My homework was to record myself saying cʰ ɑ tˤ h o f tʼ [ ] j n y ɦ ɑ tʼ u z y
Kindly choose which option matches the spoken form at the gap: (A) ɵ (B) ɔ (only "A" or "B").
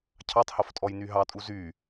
B